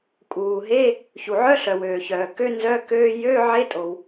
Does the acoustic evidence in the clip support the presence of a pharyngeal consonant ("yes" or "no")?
yes